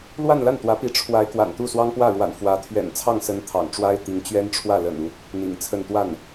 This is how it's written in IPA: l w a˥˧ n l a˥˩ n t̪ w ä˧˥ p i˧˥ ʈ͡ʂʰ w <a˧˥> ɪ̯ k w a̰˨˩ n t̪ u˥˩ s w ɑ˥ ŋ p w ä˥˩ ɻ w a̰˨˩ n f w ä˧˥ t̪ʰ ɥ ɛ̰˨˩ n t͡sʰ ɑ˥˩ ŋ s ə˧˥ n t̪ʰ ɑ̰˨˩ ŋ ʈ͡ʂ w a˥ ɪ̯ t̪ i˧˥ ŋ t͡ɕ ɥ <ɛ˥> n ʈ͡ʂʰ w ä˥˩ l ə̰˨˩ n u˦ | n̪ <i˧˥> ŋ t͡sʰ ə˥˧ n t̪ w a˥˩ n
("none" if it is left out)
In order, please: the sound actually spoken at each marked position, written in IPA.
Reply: a˧˥, ɛ˥, ḭ˨˩

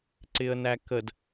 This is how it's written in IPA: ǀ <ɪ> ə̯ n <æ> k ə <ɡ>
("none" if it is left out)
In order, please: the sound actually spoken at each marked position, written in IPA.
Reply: ɪ, æ, d

